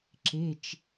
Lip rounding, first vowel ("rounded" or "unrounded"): unrounded